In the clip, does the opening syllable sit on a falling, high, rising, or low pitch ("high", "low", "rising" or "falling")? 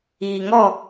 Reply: low